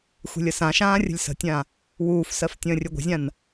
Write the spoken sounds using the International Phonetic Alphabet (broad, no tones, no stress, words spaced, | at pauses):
xʷe̤lʲəsãʃãː rʲə̤lʲsə̤tʲã | wuːfsɜf tʲə̃ːrʲɵɡʷə̤zʲãn